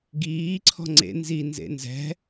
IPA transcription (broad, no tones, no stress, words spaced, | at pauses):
ɡiː ǀʰɔ̤ŋ͡ǀḛ nzi nzḛnzɛ̤